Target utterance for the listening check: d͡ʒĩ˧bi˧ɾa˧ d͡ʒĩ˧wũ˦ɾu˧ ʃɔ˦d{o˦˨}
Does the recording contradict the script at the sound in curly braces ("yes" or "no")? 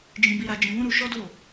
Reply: no